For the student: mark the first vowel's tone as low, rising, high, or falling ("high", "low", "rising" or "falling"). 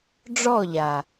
falling